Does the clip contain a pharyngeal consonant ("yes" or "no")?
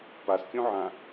yes